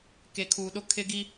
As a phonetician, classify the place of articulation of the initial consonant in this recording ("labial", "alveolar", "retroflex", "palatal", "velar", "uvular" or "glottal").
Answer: velar